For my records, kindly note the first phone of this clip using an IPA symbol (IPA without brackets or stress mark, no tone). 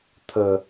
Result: tʰ